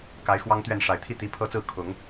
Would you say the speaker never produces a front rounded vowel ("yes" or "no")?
yes